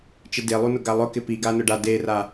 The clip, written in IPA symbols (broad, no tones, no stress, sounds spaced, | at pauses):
t͡ʃ ɪ d e lˠ u n ʊ ɡ a lˠ ʊ k ɪ p i ɡ a n ʊ ɖ a d e r a